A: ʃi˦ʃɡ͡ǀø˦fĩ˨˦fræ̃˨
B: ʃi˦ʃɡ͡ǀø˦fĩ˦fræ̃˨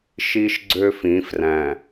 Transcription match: A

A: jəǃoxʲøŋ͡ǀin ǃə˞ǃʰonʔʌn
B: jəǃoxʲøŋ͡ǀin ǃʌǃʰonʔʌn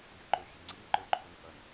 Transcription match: A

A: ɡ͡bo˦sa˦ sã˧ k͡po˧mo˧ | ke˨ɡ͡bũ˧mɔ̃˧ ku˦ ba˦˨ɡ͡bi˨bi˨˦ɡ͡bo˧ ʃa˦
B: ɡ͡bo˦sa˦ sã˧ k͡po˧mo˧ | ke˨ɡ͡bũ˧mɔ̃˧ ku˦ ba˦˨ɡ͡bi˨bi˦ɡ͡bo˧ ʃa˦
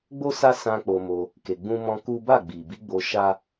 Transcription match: A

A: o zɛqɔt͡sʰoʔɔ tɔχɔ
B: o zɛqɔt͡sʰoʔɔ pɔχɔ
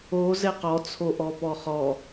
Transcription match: B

